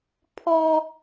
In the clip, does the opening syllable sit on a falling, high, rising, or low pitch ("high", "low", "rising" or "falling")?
high